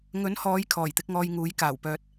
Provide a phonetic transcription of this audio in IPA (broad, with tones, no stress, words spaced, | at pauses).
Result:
ŋɵ˨˥nhɔː˨˧j kʰɔː˨˩jt̪ɪ˨˥k̚ŋɔː˧jŋuː˨˥j kaː˨˩wpœː˧t̚